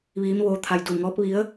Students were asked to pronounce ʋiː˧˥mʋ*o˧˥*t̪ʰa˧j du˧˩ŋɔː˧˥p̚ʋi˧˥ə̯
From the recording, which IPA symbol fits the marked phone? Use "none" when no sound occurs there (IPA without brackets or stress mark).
oː˧˥